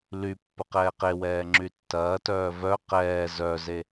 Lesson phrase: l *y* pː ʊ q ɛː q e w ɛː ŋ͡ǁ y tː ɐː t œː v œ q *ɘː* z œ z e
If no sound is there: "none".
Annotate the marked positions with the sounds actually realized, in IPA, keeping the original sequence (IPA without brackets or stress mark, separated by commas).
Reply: y, ɛː